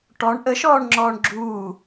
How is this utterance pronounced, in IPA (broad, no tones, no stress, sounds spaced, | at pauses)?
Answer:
ʈ ɔ ɳ ʔ ə ʃ ɔː ɳ ŋ͡ǁ ɔː ɳ ɡ͡ǁ uː